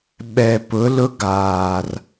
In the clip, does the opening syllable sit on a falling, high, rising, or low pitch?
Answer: low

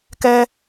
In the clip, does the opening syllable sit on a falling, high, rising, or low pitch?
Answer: high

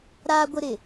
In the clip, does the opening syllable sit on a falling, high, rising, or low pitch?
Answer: high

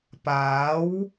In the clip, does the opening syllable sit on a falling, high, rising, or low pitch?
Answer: rising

